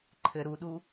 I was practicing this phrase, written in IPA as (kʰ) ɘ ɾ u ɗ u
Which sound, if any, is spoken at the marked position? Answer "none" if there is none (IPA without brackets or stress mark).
ǃʰ